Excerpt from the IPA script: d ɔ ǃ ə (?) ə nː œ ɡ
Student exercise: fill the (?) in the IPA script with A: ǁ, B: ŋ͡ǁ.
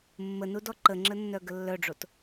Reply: B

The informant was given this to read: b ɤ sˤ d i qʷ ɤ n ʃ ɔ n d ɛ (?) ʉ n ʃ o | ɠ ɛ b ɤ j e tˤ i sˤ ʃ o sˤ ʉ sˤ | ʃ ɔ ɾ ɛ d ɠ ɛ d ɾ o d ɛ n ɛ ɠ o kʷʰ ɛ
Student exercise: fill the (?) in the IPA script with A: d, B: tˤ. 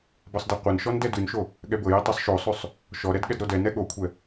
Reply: A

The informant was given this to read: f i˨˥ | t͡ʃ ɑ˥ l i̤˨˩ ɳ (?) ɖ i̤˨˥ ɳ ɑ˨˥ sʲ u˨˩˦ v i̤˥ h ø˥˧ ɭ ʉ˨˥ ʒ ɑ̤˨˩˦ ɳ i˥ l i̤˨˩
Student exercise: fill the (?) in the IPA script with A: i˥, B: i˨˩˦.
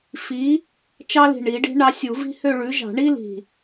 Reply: B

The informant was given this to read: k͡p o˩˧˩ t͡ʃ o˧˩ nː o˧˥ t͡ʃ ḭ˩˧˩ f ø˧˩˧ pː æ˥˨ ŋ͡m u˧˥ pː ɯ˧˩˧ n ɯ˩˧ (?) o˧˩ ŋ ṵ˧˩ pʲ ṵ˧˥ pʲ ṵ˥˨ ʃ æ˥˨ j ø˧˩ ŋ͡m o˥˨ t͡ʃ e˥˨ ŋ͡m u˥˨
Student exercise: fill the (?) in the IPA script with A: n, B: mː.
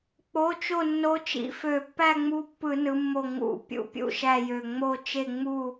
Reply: B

